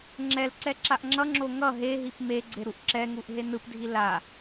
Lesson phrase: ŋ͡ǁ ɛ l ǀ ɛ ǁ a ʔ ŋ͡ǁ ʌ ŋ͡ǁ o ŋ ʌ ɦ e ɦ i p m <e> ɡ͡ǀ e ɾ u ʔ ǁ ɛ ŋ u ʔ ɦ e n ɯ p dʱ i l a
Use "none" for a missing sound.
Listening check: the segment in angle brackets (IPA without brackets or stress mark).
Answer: e